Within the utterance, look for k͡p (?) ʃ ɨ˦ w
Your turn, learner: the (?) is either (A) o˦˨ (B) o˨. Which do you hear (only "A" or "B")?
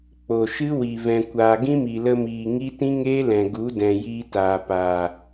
B